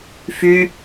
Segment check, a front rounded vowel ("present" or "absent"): present